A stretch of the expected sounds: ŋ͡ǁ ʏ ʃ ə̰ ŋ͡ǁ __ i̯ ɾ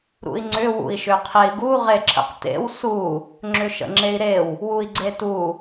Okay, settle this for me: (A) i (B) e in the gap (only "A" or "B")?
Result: B